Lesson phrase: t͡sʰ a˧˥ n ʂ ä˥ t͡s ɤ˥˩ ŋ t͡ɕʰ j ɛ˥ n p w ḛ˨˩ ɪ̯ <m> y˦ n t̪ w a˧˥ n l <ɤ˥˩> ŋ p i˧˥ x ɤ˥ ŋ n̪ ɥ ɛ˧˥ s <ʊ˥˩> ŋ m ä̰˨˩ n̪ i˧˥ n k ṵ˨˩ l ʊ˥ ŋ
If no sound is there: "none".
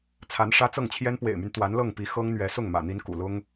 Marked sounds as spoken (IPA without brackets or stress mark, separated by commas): m, ɤ˥˩, ʊ˥˩